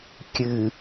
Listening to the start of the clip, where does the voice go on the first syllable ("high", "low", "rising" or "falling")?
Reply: low